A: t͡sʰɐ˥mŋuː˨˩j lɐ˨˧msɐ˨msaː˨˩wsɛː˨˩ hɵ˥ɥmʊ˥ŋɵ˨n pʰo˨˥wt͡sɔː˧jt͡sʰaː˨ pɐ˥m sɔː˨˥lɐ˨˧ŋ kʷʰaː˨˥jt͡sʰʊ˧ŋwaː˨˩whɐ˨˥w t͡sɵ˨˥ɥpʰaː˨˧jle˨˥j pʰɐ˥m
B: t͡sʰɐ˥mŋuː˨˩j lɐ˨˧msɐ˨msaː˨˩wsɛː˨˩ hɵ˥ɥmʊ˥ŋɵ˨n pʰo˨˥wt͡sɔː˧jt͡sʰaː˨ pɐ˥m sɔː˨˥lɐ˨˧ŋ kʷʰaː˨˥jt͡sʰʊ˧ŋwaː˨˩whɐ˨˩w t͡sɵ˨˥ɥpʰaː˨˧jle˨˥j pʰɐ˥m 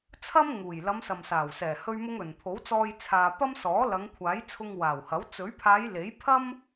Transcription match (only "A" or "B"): A